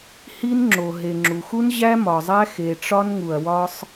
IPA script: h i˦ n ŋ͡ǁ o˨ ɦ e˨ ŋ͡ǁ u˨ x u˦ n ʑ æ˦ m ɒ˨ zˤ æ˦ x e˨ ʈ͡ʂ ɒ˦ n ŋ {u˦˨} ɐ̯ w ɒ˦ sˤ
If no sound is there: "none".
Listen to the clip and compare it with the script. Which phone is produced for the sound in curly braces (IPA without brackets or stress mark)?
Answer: u˨